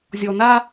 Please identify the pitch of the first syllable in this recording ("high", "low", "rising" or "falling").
low